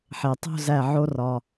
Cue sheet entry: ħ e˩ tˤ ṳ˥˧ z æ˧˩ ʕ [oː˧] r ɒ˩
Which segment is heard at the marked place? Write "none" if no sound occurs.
o˧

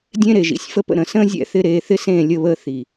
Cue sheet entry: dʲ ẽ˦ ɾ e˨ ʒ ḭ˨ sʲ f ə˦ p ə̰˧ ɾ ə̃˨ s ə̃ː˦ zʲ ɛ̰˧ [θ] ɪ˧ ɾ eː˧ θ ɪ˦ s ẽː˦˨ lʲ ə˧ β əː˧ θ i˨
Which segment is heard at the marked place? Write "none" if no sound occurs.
θ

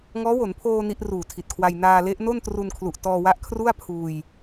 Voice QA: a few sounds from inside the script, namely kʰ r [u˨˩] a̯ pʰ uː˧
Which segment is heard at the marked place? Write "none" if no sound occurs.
u˥˩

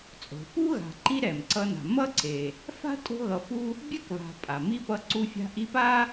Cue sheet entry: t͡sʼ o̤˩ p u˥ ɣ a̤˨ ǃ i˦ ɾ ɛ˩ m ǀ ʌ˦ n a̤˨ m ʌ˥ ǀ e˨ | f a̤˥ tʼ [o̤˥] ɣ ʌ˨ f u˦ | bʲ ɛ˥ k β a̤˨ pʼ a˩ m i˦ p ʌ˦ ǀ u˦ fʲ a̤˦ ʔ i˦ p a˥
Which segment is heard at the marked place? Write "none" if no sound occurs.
o̤˦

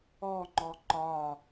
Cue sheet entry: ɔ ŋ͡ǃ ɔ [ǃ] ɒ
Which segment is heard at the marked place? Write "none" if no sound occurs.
ǃ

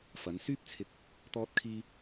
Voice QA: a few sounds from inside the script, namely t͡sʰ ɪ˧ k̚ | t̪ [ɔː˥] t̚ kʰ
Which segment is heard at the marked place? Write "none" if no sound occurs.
ɔː˥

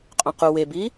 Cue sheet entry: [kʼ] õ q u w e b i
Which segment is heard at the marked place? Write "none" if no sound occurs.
qʼ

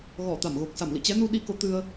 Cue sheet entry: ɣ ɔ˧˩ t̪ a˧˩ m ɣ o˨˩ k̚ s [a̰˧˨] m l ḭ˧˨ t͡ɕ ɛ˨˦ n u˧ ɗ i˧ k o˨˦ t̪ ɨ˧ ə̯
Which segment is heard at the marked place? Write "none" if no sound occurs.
a˧˩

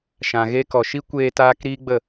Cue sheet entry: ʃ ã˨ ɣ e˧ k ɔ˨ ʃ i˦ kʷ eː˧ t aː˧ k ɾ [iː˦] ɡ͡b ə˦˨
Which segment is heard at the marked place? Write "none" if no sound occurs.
iː˦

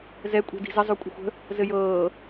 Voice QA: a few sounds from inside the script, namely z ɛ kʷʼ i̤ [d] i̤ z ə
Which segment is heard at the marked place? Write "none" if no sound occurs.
d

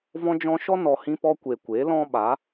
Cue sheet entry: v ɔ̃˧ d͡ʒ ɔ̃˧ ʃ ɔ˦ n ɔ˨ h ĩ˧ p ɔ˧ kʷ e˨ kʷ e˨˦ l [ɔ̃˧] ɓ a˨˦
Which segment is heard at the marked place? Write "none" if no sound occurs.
ɔ̃˦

